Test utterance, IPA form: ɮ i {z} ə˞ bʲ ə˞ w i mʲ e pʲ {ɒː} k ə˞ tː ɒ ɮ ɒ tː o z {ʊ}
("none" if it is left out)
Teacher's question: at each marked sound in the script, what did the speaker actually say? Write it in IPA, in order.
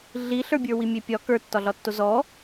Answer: ɬ, ɒ, ɔ

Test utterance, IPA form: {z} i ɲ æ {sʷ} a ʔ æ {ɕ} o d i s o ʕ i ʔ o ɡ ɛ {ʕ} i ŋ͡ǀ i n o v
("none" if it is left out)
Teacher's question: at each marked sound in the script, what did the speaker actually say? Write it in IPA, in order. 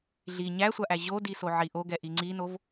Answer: ɮ, sʷ, ʑ, ʔ

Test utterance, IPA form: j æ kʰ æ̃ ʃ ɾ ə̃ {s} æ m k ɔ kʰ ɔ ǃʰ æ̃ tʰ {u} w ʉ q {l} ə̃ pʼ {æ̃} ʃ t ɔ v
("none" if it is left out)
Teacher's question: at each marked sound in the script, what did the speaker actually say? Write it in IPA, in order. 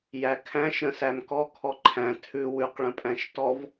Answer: s, ʉ, ɭ, æ̃

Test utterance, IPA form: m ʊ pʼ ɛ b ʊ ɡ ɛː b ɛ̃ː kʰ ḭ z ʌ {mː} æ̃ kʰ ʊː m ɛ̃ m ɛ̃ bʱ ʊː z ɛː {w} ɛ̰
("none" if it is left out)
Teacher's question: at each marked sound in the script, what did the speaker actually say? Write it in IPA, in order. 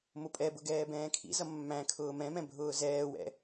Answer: mː, w

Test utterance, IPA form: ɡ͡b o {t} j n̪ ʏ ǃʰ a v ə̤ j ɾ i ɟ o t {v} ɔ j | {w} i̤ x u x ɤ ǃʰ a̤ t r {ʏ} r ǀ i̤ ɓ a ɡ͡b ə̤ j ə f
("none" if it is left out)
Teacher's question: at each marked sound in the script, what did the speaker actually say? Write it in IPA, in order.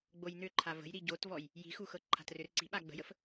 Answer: none, v, j, ʏ

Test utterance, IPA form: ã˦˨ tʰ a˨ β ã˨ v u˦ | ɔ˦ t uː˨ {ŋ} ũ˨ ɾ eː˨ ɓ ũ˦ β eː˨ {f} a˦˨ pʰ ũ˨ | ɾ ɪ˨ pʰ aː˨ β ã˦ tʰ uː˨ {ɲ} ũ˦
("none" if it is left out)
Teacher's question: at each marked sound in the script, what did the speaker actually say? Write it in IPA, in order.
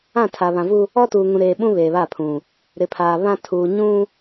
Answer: ŋ, β, ɲ

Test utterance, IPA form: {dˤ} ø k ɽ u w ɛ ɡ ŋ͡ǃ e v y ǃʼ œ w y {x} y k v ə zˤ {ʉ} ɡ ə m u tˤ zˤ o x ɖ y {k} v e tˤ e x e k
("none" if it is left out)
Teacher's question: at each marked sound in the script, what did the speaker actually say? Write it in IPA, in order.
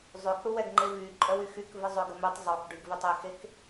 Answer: zˤ, x, ø, ɡ

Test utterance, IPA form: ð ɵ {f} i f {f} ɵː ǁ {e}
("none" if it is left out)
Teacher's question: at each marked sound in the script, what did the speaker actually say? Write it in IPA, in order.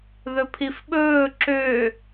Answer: pʰ, ɓ, ø

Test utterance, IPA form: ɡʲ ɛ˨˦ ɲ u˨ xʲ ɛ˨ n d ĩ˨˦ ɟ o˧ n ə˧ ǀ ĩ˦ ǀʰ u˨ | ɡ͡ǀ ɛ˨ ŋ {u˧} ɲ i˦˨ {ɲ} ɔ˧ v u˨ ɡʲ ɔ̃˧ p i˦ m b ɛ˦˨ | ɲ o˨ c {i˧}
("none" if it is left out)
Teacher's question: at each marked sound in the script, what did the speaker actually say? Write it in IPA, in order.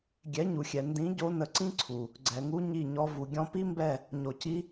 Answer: u˧, ɲ, i˧

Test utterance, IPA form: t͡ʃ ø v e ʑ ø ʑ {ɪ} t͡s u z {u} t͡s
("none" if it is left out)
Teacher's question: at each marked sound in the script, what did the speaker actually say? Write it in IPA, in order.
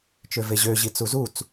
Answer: i, u

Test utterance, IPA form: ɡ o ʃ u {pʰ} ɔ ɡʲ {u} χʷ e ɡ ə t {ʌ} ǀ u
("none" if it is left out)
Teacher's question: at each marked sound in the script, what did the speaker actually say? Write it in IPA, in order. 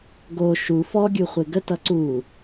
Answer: f, u, ʌ

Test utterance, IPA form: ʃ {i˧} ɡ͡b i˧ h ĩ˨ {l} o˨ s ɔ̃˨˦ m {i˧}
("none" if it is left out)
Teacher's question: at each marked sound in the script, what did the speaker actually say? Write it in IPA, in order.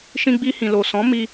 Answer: ĩ˧, l, i˧

